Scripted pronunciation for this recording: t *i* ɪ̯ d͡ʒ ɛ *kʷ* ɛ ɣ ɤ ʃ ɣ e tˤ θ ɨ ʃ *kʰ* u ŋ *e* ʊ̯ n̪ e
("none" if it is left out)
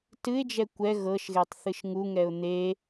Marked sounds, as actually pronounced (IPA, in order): ɨ, kʷ, ŋ, ɛ

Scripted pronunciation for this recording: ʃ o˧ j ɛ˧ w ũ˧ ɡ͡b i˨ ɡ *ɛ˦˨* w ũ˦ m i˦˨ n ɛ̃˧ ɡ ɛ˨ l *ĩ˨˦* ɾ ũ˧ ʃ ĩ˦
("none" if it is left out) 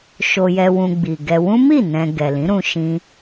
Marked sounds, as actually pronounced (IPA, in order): ɛ˧, ĩ˨˦

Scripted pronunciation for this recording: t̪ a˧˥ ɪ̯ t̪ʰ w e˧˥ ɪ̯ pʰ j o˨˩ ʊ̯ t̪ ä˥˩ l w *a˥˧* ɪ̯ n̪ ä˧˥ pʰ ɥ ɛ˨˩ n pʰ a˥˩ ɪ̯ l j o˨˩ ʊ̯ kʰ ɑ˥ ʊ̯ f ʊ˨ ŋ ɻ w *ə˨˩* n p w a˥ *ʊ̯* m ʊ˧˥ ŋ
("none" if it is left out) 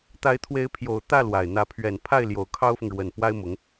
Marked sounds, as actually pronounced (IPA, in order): a˨˩, ə˨˩, ɪ̯

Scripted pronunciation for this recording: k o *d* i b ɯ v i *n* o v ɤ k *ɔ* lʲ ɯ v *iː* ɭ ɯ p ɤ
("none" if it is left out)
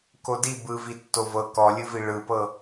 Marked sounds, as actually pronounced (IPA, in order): d, tː, ɔ, i

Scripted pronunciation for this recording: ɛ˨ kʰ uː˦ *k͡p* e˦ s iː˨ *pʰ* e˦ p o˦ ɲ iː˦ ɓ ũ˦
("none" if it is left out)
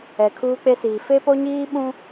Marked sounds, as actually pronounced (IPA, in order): k͡p, f

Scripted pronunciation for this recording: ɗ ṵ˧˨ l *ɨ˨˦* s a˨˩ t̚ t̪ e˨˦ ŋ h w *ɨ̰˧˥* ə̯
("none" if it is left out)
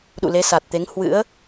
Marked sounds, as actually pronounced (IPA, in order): e˨˦, ɨ̰˧˥

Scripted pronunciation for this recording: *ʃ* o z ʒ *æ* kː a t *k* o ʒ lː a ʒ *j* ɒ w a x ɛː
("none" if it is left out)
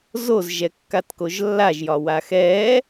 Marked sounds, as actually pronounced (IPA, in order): z, ɛ, k, j

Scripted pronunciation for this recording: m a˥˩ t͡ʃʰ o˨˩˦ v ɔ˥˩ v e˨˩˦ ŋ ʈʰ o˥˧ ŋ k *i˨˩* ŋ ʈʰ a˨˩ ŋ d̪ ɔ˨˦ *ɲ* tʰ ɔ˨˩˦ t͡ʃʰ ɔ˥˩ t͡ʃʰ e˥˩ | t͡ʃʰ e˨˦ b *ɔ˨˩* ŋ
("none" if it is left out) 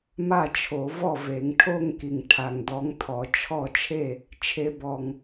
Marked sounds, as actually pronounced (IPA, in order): i˨˩, ŋ, ɔ˨˩

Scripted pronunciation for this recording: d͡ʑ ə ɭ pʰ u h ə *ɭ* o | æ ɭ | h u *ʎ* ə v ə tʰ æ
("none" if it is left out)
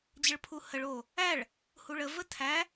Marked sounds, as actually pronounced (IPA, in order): ɭ, ɭ

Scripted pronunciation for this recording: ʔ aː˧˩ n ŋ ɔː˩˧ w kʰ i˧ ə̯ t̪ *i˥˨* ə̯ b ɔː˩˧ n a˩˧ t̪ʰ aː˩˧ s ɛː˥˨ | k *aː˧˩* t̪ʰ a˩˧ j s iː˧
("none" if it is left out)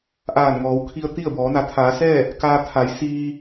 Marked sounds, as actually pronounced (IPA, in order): i˥˨, aː˧

